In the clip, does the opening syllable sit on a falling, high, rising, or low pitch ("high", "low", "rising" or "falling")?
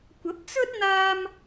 rising